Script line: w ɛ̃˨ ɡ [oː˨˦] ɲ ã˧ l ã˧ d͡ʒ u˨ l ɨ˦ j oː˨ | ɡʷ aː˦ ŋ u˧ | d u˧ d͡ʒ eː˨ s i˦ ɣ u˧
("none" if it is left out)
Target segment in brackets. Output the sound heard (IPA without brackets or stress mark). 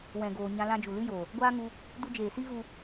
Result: oː˨